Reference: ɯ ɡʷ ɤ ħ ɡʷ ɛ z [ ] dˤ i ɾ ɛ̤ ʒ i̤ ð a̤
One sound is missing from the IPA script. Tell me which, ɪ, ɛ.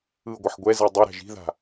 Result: ɛ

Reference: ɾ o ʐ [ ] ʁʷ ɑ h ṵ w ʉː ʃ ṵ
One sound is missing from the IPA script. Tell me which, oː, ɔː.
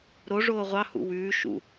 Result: oː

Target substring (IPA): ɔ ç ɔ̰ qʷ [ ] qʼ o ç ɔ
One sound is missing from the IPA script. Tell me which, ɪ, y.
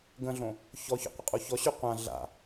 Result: ɪ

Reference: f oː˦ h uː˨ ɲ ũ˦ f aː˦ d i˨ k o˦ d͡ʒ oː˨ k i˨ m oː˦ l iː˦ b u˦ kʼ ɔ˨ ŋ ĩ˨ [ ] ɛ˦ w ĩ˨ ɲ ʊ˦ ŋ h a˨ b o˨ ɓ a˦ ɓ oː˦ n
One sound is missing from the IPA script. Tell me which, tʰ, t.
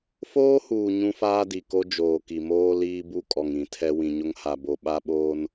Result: tʰ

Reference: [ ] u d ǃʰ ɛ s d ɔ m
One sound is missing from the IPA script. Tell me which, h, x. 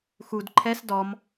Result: x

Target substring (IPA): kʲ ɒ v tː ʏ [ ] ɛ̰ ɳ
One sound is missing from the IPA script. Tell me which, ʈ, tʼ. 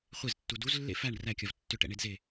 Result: ʈ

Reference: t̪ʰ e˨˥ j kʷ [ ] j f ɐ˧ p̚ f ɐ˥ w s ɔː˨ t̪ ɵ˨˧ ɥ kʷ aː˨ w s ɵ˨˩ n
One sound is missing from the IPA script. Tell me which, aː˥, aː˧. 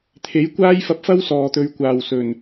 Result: aː˥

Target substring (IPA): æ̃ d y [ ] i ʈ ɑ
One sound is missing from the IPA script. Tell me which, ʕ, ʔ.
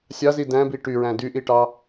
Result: ʔ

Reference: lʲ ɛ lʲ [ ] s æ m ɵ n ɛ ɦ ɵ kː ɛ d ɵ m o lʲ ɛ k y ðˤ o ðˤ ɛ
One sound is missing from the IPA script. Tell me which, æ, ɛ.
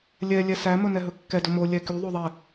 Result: ɛ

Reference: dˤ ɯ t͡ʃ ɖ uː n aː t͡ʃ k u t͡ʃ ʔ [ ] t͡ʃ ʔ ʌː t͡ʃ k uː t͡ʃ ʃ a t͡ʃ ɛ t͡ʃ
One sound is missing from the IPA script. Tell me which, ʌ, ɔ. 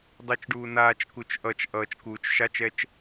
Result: ʌ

